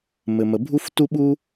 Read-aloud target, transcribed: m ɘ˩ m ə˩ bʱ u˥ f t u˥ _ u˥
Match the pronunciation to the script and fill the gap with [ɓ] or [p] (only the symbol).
ɓ